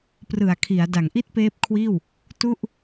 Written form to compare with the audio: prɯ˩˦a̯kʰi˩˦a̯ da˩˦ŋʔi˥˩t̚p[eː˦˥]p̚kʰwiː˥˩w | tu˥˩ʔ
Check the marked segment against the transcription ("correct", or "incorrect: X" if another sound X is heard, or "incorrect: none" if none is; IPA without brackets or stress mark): correct